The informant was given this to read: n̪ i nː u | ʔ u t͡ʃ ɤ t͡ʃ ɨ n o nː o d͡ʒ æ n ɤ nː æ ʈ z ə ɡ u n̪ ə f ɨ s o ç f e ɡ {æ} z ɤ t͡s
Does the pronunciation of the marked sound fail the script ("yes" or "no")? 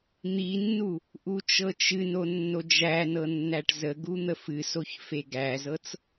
no